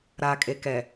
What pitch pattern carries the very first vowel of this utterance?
low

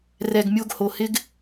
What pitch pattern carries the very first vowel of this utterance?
low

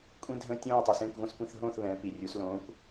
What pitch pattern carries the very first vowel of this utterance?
high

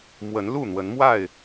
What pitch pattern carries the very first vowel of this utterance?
rising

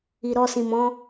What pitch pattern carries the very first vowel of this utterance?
low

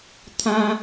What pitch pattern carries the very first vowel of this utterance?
high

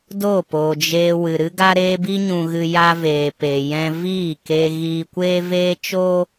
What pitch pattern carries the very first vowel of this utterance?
falling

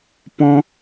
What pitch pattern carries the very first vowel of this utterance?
high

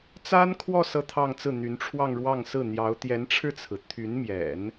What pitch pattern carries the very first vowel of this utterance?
high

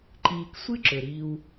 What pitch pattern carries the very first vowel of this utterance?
low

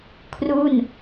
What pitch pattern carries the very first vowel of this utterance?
falling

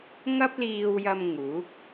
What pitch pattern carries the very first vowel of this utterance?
high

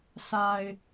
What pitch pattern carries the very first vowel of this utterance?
low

